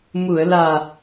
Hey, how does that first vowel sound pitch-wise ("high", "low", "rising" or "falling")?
low